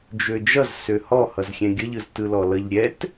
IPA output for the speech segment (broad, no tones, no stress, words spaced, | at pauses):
d͡ʒød͡ʒʌz søhɔ hʌzxʲɛ̃ɡʲʌʎɯz tɯlɔlʌʎ ɾʲɛt